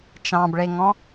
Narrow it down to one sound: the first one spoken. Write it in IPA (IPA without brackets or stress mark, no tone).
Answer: t͡ʃ